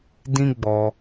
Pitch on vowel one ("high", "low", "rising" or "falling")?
high